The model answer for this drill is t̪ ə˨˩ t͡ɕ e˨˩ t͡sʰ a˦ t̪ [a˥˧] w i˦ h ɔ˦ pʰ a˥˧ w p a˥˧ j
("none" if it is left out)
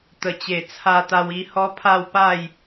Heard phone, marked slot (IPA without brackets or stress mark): a˦